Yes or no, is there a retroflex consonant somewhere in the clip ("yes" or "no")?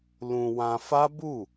no